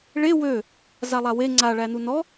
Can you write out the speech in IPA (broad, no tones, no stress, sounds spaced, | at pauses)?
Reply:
ɭ e w ø | z a lˠ a w e ŋ͡ǀ a ɭ æ n u n ɔ